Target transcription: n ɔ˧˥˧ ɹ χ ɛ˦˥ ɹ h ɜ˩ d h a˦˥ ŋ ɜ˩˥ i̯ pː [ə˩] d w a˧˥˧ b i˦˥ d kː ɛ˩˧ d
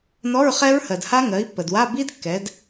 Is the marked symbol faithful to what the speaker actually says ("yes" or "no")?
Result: yes